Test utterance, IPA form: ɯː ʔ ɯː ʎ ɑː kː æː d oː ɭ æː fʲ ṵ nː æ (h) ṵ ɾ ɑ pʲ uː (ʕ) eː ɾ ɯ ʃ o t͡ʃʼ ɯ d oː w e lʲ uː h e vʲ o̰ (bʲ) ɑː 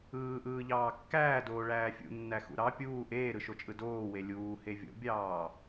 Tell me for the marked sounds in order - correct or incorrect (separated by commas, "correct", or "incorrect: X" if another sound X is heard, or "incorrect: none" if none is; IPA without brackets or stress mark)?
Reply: incorrect: x, incorrect: ʔ, correct